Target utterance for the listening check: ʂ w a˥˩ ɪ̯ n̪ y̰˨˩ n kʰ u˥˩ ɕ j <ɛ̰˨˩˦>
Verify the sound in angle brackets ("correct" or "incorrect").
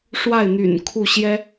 incorrect